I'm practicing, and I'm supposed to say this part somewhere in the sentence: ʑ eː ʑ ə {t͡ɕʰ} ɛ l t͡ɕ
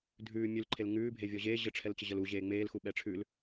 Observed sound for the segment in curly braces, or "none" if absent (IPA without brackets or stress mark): ʈ͡ʂʰ